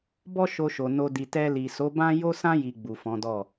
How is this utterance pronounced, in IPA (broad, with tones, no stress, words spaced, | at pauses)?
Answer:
bɔ˦ʃo˧ʃo˨ no˧ di˨tɛ˧li˨ so˨˦bã˦ jo˦sã˦ ji˧ɡ͡bu˨fɔ̃˨˦dɔ˦˨